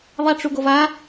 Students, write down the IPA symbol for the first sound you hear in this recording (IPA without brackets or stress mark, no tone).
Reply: ðˤ